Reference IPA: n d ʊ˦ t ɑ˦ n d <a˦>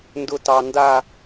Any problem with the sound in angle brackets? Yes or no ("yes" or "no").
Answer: no